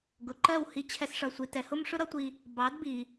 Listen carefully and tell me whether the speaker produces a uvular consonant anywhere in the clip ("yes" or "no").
no